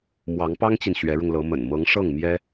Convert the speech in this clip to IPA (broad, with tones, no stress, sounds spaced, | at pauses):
m w ɑ˧˥ ŋ p ɑ˥ ŋ t͡ɕ i˨ n ɕ ɥ ɛ˧˥ ɻ ʊ˧ ŋ l ɤ˧˥ m ə̰˨˩ n m ɤ˧˥ ŋ ʂ ɤ˥˩ ŋ m j ɛ˥